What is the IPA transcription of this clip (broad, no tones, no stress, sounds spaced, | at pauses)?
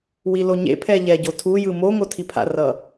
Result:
w i l o ɲ ḛ pʰ ɛ ʎ ɛ ɟ o tʰ u j ɯ m o ŋ o tʰ i pʰ a̰ r ʌ